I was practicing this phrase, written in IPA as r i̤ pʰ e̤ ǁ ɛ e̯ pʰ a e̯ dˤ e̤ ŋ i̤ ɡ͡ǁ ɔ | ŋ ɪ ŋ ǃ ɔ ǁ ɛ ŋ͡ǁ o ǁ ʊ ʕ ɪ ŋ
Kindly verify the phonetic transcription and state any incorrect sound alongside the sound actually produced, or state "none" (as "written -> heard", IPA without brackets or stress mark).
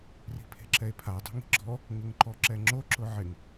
none